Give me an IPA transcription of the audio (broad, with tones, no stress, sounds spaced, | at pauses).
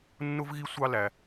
nː ʊ˥ v ɣ i˥ sʷ ɑ˥ l æ˧